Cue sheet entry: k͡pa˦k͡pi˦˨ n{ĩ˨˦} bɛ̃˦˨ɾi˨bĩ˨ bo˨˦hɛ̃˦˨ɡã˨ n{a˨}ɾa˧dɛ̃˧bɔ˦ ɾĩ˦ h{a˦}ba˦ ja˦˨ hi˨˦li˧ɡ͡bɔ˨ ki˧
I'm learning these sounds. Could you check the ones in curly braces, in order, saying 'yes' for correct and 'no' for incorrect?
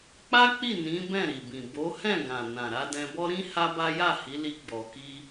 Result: yes, no, yes

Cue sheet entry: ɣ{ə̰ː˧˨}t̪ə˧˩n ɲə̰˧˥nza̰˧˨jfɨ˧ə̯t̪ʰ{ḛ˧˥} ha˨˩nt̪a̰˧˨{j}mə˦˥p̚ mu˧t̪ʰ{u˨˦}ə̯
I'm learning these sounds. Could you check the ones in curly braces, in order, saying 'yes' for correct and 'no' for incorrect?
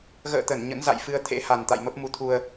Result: yes, yes, yes, no

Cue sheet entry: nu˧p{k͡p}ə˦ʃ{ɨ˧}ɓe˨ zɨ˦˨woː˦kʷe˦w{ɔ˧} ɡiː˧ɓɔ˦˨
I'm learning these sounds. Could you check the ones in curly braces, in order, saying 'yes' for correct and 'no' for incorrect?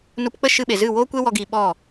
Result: yes, yes, yes

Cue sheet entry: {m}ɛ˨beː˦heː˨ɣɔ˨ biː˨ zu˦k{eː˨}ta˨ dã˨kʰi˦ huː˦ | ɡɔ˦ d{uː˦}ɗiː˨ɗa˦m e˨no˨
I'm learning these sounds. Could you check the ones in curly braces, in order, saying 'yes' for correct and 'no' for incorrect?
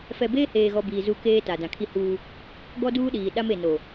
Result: no, no, yes

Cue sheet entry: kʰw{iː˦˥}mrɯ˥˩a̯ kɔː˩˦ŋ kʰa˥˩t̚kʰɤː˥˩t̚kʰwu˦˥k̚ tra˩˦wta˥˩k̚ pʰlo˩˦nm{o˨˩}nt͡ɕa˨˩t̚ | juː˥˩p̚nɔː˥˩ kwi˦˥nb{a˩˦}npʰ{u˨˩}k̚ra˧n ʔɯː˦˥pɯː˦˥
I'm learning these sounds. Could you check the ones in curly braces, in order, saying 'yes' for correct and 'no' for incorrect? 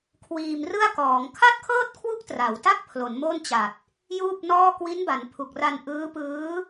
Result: no, no, yes, yes

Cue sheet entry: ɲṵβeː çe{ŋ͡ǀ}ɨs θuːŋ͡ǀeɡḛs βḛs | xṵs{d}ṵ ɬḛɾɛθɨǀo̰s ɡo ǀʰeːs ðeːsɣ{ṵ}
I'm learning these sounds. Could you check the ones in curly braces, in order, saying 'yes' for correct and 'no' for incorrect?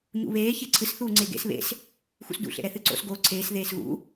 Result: no, yes, yes

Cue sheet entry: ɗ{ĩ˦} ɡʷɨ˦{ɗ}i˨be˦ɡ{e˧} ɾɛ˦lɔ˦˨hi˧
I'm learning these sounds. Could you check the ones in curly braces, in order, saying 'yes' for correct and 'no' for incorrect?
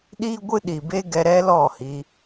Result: no, yes, no

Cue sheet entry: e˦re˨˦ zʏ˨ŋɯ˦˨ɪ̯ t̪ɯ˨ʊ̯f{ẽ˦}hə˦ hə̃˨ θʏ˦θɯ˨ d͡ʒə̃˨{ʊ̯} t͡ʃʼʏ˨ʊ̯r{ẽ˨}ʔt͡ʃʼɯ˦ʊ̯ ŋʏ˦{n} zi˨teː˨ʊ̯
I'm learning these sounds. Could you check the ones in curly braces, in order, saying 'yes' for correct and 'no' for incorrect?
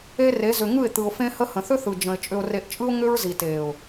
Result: yes, no, no, no

